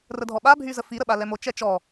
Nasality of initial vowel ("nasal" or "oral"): oral